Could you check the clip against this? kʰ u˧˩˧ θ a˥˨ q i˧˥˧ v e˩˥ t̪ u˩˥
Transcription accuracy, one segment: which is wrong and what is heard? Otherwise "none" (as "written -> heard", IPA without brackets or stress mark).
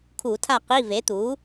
θ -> tʰ